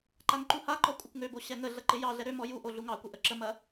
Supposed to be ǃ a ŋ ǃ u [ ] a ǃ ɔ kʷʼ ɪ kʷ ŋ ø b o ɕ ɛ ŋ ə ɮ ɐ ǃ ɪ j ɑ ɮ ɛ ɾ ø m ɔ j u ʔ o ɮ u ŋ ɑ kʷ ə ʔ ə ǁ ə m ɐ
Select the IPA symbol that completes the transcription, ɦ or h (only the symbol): h